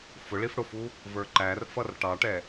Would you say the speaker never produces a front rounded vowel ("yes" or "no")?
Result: yes